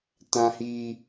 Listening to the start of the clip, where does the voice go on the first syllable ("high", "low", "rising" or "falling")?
high